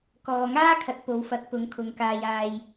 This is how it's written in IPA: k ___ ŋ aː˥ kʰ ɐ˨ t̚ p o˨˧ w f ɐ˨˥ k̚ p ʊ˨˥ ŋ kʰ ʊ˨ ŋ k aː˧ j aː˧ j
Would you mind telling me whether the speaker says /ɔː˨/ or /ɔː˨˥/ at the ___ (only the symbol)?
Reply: ɔː˨